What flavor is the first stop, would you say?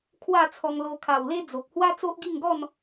aspirated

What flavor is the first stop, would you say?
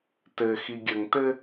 plain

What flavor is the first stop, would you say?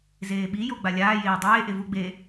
implosive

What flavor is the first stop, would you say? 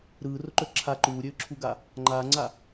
click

